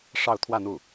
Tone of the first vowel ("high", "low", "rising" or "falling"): falling